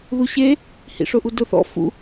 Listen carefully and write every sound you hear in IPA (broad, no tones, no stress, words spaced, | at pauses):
ðuɕe | hḭʂʊʔudʊ θɔ̰ fṵ